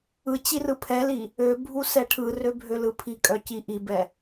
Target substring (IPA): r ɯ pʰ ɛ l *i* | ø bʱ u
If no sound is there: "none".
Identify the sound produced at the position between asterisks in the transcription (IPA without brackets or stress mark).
i